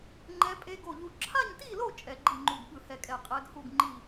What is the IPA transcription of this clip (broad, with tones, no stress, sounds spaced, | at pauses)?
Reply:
ŋ͡ǃ ɛ˦˥ pʼ e˦˥ ɡ o˥˧ ʎ u˥˧ ǁʰ a˥˧ ɲ t i˥˧ l o˥˧ t͡ʃʼ ɛ˦˥ ɡ͡ǃ i˥˧ ŋ͡ǃ u˥˧ ɡ ɠ ɯ˥˧ h ɛ˥˧ kʼ ɛ˥˧ qʼ ɛ˦˥ ɡ h u˥˧ ɡ ŋ͡ǃ i˥˧